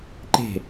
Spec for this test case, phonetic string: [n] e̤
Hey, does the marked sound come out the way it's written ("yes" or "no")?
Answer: no